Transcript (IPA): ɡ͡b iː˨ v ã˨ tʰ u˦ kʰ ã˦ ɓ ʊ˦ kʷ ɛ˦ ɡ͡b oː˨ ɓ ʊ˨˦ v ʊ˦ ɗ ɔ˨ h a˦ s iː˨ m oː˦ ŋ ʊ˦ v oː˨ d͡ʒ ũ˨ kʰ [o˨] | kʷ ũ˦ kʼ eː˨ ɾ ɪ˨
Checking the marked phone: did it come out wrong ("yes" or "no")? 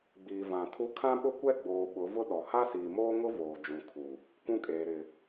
yes